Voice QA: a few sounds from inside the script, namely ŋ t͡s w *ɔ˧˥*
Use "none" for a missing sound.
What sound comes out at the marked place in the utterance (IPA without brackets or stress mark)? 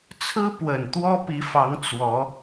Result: ɔ˧˥